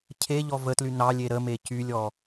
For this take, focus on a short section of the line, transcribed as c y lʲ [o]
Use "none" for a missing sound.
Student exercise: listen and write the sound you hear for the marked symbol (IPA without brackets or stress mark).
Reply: ɔ